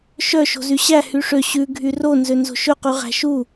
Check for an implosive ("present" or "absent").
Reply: absent